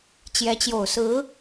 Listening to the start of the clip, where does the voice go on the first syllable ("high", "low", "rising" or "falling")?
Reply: rising